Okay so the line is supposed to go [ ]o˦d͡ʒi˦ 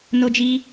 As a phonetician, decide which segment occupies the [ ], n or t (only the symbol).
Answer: n